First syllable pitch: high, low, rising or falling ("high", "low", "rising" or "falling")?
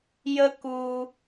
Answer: high